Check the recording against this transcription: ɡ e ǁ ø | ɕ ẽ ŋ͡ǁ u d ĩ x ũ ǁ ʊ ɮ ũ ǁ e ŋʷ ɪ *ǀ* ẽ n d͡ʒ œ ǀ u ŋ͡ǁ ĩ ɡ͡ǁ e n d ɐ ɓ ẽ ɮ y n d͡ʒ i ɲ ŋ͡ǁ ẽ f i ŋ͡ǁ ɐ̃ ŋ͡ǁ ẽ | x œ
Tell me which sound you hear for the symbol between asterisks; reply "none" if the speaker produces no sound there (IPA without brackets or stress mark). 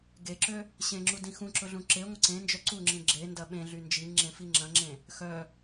ǀ